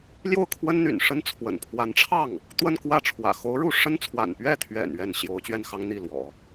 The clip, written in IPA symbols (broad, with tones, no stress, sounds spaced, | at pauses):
l j o˥˩ ʊ̯ kʰ w ə˥ n n̪ y̰˨˩ n ʂ ə˥ n t͡sʰ w ə̰˨˩ n pʰ w a˧˥ n ʈ͡ʂʰ ɑ˥˩ ŋ | t̪ w ə˥˧ n k w ä˥˩ ʈ͡ʂʰ w ä̰˨˩ x o˧˥ ʊ̯ ɻ u˥˩ ʂ ə˥ n t͡sʰ w a̰˨˩ n p ɥ ɛ˥˩ t̪ʰ ɥ ɛ̰˨˩ n ɥ ɛ˥˩ n ɕ j o˧˥ ʊ̯ t͡ɕ ɥ ɛ˥˩ n x ɑ˥ ŋ n̪ i˥˩ l w ɔ̰˨˩˦